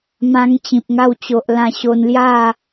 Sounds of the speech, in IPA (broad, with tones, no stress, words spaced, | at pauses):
mã˧ŋt͡ɕĩ˨p̚ŋa˧wt͡ɕo˨ʔ lã˧ɕo˧nlja˥˧